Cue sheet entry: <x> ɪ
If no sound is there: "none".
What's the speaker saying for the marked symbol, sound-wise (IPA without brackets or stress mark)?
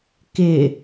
k